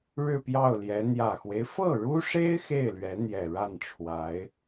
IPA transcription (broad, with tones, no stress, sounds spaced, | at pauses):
ɻ ɻ̩˥˧ p j ɑ˥˩ ʊ̯ l j ɛ˧˥ n̪ j ä˨˩ x w e˦ ɪ̯ f ɤ˥˩ ɻ u˥ ʂ e˥ ɪ̯ x e˥˩ ɪ̯ l ɥ ɛ˧˥ n̪ j ɛ˨˩ ɻ a˥˩ n ʈ͡ʂʰ w a˧˥ ɪ̯